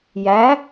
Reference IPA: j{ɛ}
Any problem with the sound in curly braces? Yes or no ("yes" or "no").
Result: yes